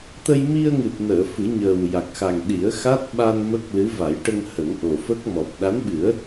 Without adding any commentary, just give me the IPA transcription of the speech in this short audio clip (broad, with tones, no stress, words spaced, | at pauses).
t̪ə˧jmi˧ə̯ŋɨ˨˩t̚nəː˨˩˨ fɨ˨˩˦ɲəː˨˩wja˨˩k̚xa˨˩ŋ ɗi˨˩˦ə̯xa˦˥t̚ ɓa˧n mə˦˥k̚lɨ˧˥ va˨˩˦jʈə˧ŋ hə˨˩˦ŋʔo˨˩fə˦˥k̚mɔ˨˩p̚ ɗa˧˥nɓɨ˨˩˦ə̯